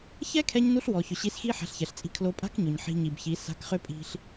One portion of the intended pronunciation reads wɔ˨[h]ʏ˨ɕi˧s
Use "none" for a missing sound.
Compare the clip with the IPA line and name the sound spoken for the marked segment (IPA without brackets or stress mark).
ç